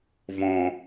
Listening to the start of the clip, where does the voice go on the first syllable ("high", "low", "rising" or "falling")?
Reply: low